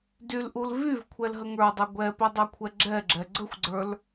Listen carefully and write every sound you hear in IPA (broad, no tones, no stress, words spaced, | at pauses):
dylʔul vyv kʷʰɛlɦəŋə˞dˤo ɡʷɛpe dˤœkʷʰɛɡ͡ǁɛɡ͡ǁɛ ɡ͡ǀəxʷɡ͡ǀə˞l